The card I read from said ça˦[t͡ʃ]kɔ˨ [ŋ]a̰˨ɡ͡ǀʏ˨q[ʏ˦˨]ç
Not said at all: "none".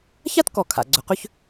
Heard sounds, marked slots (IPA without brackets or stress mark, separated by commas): t, kʰ, ʏ˦